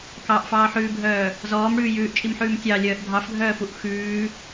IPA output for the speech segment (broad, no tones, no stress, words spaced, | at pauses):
kɑʔfɑːħʉːbʱœː | zɔːmɽʉː jʉːʔt͡ʃʼimħʉːm tʲɑlʲœːʔ dʱɑfɡʱœːfuʔ xʉː